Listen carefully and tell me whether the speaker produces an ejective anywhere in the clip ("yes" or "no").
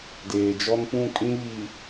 yes